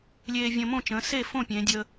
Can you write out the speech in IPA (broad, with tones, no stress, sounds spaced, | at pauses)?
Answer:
lʲ eː˧ vʲ ə̃ː˧ m õ˥˩ t͡ʃ ə̃ː˩˧ s e˥˩ f õ˥˩ pʲ ẽː˩˧ dʲ ə˧